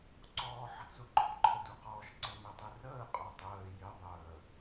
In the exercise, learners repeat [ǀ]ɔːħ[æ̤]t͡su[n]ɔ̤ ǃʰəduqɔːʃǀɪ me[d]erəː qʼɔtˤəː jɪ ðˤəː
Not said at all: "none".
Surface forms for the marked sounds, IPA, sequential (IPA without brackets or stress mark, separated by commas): ǀ, ə̤, ǃ, tˤ